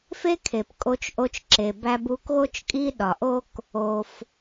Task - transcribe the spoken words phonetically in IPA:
f e˥ kʰ e˩ p kʼ o˧ t͡ʃ ʔ o˧ t͡ʃ ǁ e˩ b æ˧ b u˧ k ɣ o˥ t͡ʃ kʼ i˥ ɗ ɒ˩ ʔ o˥ k | o˩ f

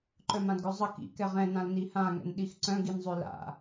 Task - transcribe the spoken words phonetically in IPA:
ǃ œ m ã d ɡ œ zˤ ə k ḭ k ɛ ʁ ɛ̃ n ã l n i h ã ŋ ɛ̰ n ɗ i x ǀ œ̃ ɡ i n zˤ ø l a̰

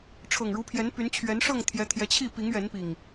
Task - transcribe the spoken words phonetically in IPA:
ʈ͡ʂʰ ɤ˨˩ ŋ ɻ u˨˦ pʰ j ɛ˨˦ n p y˨˦ n t͡ɕʰ ɥ ɛ˨˦ n ʂ ɤ˥˨ ŋ t̪ʰ j ɛ˨˦ t̪ʰ j ɛ˨˦ t͡ɕʰ i˥˨ p i˨˦ ŋ ɥ ɛ˨˦ n p i˨˩ ŋ

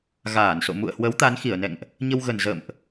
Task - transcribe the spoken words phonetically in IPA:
ɣ aː˧˩ n s o̰˧˨ m ṵ˧˨ ə̯ h w ə˨˦ w t̪ a˨˦ n x i˧˩ ə̯ n ɛ̰˧˨ ŋ ʔ | ɲ ə˧ w ɣ ə˨˩ n z ə̰˧˨ m ʔ

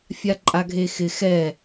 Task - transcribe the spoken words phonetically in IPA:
fʲ a ǃʼ a ɡʱ e x ɪ x ɛ

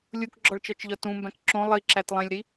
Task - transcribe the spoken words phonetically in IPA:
lʲ u k ɡ͡ǁ ɒ ɭ t͡ʃ ɒ t͡ʃ ʎ ɒ t ũ m b æ̃ k ǁ õ lˠ i ǁ æ t lˠ ẽ lʲ ɾ i

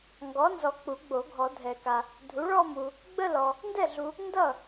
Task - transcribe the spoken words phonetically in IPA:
ŋ ɡ ɔ˩˥ n z ɔ˨ k͡p u˨˩˦ ɡ͡b o˨˩˦ ɡʱ ɔ˨˩˦ dʱ ɛ˨˩˦ k a˨ | dʱ u˩˥ ɭ ɔ˥˧ m u˨ | ɡ͡b ə˥˧ l ɔ˨ | n d ɛ˥˩ ɮ u˨ | n d ʌ˥˩

